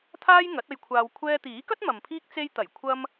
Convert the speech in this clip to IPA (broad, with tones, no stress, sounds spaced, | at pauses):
t̪ʰ aː˥ j ŋ ɐ˨˥ t̚ ɐ˧ j kʷʰ aː˧ w kʷʰ ɛː˧ t̪ iː˨˥ k ɐ˥ t̚ m ɐ˨ m pʰ iː˥ k̚ t͡s e˧ j t̪ ɐ˨˩ j kʷʰ ɐ˥ m